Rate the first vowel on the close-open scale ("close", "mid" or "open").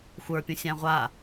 mid